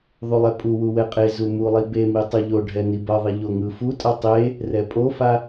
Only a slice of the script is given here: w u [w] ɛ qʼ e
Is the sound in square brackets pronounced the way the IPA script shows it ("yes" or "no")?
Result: yes